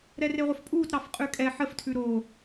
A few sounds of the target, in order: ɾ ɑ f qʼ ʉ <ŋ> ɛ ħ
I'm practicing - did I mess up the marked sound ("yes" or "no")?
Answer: yes